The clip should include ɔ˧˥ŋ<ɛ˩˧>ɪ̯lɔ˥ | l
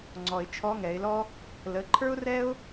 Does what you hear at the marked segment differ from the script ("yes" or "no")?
no